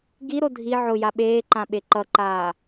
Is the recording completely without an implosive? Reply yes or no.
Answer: no